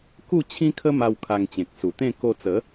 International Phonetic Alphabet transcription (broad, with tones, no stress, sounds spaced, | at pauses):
k u˥˧ t͡ɕʰ ĩ˦ kʰ ə˦ m a˧ w kʰ a˧ ŋ t͡ɕ ẽ˨ k̚ s u˨˩ t̪ ẽ˥˧ k o˧ t͡s ə˨˦